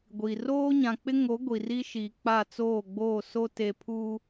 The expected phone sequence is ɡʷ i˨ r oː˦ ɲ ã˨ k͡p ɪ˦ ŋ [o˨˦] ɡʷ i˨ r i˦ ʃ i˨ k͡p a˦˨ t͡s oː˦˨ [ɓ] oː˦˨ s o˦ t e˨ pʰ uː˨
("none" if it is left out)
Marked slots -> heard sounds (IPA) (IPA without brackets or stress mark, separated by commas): o˨˦, ɡ͡b